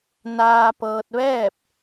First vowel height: low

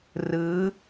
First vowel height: high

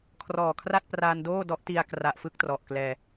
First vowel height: mid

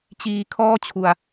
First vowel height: high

